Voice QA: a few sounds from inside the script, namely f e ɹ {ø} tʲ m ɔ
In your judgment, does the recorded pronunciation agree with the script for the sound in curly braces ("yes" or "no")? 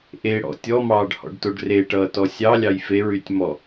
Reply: no